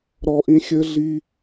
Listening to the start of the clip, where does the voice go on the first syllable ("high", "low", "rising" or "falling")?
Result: high